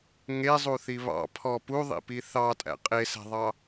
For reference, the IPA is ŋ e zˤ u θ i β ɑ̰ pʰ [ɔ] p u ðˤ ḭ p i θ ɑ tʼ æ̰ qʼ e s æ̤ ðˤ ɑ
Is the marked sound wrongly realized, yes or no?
no